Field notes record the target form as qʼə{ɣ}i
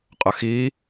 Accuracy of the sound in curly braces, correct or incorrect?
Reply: incorrect: x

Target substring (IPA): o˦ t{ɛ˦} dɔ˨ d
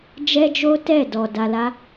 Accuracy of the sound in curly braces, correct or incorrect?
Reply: incorrect: ɛ˦˨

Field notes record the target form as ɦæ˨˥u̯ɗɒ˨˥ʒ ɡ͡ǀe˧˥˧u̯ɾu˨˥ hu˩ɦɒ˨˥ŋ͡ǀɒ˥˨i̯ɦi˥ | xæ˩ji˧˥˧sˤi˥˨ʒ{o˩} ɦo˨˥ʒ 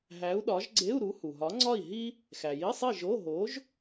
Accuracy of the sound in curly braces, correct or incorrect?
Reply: incorrect: o˧˥˧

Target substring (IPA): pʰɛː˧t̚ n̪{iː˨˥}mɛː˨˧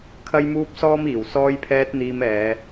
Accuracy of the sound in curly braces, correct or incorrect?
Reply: incorrect: iː˧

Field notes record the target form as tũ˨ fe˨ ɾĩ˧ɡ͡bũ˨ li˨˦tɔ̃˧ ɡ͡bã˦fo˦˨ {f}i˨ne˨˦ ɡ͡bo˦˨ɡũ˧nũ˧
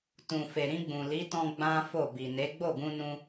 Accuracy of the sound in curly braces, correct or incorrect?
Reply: incorrect: b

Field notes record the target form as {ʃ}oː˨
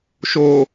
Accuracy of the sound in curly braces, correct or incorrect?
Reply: correct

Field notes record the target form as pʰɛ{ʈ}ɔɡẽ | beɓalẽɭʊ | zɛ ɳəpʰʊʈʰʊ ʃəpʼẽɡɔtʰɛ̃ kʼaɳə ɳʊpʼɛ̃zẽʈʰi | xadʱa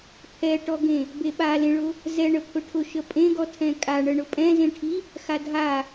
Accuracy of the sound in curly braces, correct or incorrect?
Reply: correct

